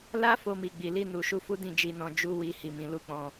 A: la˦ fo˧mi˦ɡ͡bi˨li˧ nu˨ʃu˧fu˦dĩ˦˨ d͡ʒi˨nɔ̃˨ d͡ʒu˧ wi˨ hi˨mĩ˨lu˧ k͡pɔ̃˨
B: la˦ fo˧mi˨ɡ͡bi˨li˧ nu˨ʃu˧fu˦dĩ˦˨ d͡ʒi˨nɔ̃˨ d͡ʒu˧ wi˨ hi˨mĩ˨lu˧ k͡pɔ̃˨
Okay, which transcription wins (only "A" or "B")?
B